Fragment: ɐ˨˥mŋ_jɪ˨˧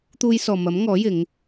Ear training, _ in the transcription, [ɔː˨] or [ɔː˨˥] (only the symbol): ɔː˨˥